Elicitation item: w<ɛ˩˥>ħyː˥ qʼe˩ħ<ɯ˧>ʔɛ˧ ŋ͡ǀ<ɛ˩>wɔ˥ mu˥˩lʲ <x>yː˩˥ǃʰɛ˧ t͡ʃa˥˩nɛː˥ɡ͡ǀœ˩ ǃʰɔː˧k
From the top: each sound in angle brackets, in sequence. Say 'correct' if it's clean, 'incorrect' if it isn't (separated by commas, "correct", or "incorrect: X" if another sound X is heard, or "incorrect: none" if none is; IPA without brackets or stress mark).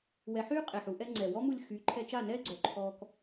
correct, incorrect: u˧, correct, correct